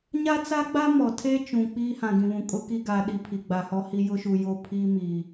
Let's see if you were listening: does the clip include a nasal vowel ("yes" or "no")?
yes